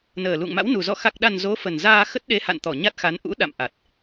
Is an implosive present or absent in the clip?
present